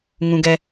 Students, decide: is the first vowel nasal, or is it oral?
nasal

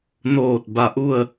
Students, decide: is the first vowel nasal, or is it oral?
oral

